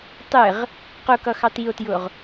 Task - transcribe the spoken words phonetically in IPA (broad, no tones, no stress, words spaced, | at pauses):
tˤɪʁ | qʊkʌxɑt io̯tjʊʁ